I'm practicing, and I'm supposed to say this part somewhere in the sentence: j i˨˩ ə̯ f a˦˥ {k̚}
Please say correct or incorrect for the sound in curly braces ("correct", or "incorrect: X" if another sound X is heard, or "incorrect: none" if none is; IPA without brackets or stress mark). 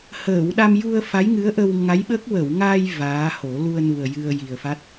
incorrect: t̚